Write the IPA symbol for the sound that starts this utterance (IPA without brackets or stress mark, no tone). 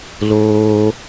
l